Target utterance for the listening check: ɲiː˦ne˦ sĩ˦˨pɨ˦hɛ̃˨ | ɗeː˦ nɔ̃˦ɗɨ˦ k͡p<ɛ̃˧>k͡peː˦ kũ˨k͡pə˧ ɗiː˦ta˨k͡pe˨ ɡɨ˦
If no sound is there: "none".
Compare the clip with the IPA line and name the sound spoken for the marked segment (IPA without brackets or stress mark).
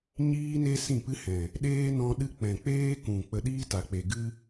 ɛ̃˨